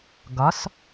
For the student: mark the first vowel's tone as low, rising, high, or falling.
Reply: rising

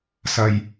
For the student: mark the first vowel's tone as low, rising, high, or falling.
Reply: low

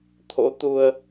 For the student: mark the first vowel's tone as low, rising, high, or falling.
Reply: rising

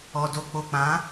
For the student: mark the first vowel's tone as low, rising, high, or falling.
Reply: low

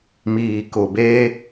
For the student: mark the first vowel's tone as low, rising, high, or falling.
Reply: low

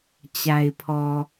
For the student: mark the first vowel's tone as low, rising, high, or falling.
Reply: low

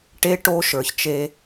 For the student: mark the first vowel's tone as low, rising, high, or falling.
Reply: high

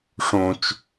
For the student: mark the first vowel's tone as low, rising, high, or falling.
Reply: low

